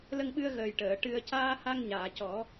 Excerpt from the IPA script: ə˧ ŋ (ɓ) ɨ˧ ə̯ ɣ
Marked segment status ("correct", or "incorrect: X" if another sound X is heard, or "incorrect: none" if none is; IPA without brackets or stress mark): correct